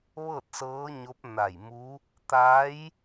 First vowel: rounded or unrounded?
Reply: unrounded